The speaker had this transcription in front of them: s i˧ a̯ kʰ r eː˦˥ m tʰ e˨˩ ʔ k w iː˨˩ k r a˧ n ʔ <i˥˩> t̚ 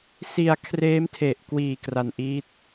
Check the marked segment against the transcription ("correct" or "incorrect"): incorrect